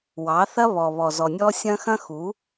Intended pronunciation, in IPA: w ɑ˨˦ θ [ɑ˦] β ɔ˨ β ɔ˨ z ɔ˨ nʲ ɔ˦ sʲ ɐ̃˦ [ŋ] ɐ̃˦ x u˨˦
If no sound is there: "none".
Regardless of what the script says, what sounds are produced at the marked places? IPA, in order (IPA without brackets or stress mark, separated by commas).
ɐ˦, x